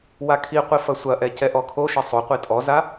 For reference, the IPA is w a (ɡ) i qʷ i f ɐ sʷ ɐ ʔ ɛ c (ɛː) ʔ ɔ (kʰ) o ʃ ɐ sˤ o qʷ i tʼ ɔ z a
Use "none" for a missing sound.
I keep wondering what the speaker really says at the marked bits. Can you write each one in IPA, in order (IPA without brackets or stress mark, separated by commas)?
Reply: kʰ, ɛ, kʰ